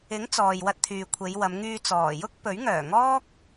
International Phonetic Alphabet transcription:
ɪ˨˥ ŋ t͡s ɔː˨ j w ɐ˧ t̚ t̪ʰ yː˨ kʷʰ e˨˧ j w ɐ˨˧ m ŋ yː˧ t͡s ɔː˨˩ j ʊ˥ k̚ p ɵ˨˥ ɥ ŋ œː˨˩ ŋ ɔː˥ k̚

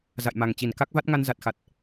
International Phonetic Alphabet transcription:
z a̰˧˨ j m a˨˩ ŋ t͡ɕ i˧˩ n k a˦˥ k̚ v a˦˥ t̚ ŋ a˧ n z a˨˩ t̚ x a˨˩ t̚

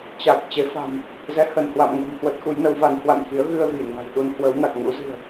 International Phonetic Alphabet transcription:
t͡ɕ a˨˩ k̚ t͡ɕ e˨˦ f a̤˨˩ m | z ɛ˨˦ h ə˧˩ n h w a̰˧˨ m ŋ ə̤˨˩ n h w ə˦˥ t̚ x u˨˦ j n ə˨˦ w v a˨˦ n h w a̰˧˨ n x i˨˦ ə̯ ɣ ɨ˧ ə̯ ɣ i˧˩ ŋ a̤˨˩ j ɗ u˧ n h w ə˨˦ w n a˨˩ k̚ ŋ ṵ˧˥ z ɨ̤˨˩ ə̯

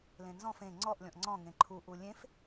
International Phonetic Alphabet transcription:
l ẽ n z ɔ̃ f ẽ ŋ͡ǀ ɔ ʔ lʲ ɔ̃ ʔ ŋ͡ǀ ɔ̃ ŋ ẽ ǃʰ u ʔ u lʲ ẽ f

